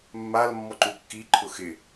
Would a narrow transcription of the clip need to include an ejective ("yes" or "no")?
no